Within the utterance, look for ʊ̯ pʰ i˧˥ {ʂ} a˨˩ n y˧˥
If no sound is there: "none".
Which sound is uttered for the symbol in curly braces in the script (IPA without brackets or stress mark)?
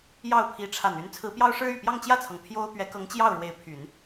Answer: ʈ͡ʂʰ